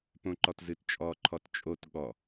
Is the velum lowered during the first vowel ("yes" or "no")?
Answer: yes